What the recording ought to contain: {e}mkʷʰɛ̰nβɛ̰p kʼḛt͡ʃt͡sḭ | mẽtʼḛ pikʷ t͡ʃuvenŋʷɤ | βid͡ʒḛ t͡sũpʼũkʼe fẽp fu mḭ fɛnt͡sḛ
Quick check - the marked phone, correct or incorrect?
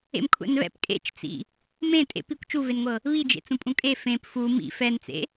incorrect